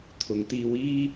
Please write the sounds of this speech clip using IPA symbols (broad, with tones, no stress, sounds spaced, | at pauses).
t̪ʰ ʊ˨˧ ŋ t̪ iː˧ w iː˥